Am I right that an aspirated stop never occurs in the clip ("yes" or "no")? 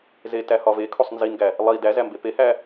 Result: no